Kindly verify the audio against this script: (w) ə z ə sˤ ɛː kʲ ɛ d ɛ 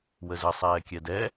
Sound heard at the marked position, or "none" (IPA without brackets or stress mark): w